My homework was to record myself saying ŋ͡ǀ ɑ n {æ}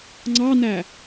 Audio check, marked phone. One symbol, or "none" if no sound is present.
æ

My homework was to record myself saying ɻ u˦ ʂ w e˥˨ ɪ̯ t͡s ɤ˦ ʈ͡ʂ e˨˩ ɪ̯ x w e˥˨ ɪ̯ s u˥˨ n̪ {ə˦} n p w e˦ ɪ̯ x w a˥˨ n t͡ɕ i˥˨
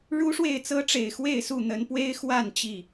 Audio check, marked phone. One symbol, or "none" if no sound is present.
ə˨˦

